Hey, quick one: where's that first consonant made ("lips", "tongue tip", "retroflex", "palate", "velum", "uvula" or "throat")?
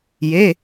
palate